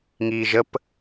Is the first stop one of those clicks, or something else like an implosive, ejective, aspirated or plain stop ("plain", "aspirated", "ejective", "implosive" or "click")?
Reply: plain